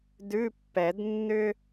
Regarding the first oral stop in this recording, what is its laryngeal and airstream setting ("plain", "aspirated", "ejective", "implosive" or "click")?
plain